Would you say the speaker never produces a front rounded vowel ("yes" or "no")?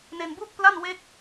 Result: yes